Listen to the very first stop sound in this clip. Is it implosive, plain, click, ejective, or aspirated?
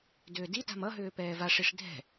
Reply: plain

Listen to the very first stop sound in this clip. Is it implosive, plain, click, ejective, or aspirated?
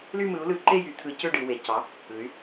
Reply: click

